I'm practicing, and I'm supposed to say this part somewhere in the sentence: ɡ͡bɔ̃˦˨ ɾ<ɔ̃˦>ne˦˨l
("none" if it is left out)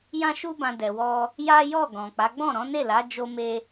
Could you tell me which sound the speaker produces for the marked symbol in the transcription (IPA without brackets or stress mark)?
ɔ̃˨˦